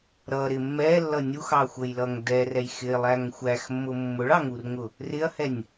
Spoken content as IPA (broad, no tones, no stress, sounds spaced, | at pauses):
ɾ ʌ ɾ ɪ mː ɛ lː ʌ nʲ u x ɑ xʷ ə j l ʌ ŋ d ɛ r ɛ j x ɪ lˠ æ ŋ xʷ æ x mː ʊ mː ʊ ɭ ɑ ŋ u r ŋ ʊ | r ɪ ɐ̯ h ɛ nʲ